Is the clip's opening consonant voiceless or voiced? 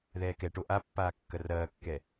voiced